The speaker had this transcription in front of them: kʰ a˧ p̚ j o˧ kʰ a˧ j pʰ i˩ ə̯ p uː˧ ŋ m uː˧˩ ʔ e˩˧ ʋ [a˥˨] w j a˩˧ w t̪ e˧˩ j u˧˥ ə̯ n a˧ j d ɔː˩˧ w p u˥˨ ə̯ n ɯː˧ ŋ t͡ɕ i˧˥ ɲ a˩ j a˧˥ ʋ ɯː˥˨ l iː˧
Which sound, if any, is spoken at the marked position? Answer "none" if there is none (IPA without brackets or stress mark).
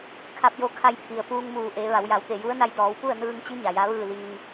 a˩˧